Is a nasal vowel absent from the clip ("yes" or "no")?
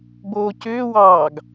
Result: yes